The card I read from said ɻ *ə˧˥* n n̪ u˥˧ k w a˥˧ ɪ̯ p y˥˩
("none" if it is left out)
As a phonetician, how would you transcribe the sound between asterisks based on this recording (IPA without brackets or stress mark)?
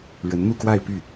ə˧˥